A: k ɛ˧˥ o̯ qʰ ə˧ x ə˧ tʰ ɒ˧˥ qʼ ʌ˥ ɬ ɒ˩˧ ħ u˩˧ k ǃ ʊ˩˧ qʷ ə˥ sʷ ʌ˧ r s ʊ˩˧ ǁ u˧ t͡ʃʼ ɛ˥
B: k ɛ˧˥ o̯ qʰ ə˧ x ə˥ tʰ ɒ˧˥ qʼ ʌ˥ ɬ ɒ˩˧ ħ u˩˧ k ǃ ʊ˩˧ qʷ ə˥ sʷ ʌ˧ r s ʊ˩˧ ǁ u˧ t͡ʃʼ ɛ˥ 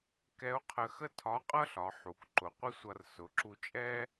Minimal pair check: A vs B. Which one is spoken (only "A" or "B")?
B